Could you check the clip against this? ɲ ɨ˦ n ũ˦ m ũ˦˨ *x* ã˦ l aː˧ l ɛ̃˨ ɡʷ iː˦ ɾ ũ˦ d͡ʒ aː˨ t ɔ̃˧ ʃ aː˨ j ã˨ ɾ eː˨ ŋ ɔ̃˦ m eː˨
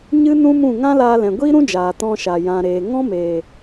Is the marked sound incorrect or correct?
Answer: incorrect